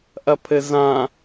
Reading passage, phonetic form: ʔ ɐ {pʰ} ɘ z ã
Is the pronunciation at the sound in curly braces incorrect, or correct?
correct